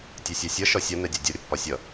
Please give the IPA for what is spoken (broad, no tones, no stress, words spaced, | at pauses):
tʲɛsʲæsʲʌ ʃɒsʲʌ nɛdʲɒdʲʌ ɾʲʌpːɒsʲʌ